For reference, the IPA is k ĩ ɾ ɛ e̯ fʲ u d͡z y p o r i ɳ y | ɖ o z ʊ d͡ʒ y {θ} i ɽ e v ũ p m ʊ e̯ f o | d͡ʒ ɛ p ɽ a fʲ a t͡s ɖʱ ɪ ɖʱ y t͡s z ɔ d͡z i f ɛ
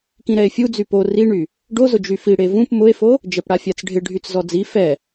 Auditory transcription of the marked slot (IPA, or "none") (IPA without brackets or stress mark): f